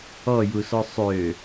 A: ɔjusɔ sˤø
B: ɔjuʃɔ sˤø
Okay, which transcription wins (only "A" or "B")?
A